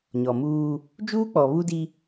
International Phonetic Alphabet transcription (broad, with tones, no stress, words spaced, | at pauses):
ɲɔ˨muː˦ | d͡ʒuː˦k͡pɔ˨ βu˦di˦